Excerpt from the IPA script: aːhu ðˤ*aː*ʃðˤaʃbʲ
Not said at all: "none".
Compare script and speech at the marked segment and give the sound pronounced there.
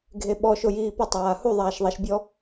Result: aː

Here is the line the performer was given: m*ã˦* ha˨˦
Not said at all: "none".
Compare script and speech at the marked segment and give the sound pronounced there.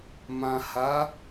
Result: ã˨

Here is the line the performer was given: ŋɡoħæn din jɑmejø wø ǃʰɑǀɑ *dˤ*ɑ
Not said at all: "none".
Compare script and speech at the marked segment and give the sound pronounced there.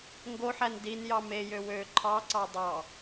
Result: dˤ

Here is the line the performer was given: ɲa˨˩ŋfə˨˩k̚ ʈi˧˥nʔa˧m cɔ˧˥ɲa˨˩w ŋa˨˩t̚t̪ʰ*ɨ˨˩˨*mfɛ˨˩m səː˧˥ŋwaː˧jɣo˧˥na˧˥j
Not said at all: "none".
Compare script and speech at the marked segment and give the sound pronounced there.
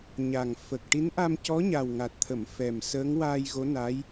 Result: ə˨˩˨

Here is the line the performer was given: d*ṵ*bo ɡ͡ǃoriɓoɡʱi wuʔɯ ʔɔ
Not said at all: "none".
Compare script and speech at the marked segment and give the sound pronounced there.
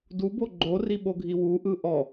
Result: u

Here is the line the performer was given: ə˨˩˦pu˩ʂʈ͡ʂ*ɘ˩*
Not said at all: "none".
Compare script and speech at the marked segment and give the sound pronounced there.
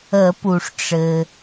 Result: ɘ˩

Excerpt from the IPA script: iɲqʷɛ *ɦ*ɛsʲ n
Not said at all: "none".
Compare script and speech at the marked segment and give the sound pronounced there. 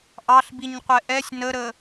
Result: ʔ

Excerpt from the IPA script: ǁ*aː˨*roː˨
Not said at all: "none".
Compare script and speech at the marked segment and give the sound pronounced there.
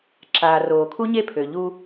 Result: aː˨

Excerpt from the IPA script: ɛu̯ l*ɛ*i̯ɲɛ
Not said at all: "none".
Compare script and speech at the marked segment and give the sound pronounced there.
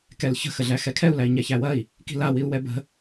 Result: æ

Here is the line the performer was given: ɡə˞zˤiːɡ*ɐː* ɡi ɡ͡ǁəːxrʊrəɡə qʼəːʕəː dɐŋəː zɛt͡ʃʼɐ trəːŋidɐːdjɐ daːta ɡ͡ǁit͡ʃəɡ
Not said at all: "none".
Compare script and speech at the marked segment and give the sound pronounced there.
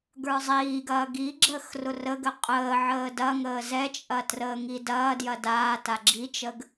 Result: ɐː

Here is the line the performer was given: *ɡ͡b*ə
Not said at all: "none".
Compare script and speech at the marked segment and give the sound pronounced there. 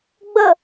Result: ɡ͡b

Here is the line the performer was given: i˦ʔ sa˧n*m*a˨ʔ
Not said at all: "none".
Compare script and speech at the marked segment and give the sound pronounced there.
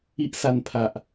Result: pʰ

